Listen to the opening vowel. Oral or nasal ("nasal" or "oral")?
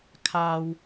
oral